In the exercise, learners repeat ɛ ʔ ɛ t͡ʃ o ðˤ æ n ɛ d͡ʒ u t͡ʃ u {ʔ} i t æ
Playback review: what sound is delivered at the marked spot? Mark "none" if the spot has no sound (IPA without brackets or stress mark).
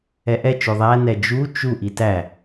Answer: ʔ